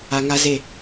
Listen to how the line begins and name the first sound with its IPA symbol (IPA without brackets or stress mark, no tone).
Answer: a